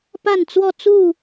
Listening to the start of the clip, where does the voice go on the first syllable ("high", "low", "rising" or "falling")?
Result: falling